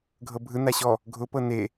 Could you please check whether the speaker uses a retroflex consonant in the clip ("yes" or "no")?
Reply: no